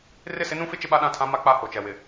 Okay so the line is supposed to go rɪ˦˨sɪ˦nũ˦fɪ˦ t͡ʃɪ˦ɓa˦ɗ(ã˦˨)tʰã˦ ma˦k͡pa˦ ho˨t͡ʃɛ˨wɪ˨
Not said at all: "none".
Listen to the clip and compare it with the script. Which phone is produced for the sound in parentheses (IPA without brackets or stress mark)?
ã˦˨